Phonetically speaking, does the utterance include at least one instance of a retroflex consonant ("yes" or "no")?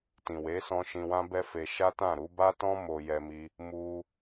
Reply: no